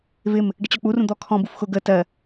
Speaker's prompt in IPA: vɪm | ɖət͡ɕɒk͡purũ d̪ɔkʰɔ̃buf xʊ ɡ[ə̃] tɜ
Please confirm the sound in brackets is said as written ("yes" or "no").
no